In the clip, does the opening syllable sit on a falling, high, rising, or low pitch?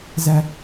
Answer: high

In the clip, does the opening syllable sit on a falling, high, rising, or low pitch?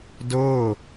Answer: falling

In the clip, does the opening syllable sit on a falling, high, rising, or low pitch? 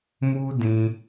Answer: high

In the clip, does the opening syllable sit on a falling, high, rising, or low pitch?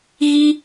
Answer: high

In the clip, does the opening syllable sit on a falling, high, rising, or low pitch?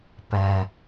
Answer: high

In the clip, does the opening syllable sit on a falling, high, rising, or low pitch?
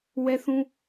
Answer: high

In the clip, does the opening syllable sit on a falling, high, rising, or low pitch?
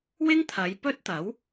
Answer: high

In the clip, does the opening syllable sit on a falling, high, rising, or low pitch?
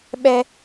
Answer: high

